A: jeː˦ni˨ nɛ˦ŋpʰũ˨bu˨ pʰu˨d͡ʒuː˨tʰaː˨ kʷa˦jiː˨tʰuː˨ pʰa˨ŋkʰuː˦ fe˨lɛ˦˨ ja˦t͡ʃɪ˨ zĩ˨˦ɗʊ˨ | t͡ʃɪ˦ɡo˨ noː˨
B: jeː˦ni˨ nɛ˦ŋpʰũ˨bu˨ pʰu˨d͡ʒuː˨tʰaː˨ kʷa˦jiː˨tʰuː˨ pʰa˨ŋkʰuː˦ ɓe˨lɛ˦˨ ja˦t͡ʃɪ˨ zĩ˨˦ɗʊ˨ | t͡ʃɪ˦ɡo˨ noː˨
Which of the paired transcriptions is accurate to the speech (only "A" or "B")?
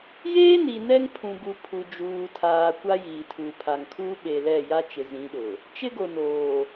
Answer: B